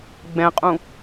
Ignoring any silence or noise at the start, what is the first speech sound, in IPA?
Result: ɡ͡b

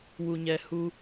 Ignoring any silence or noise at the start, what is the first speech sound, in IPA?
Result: w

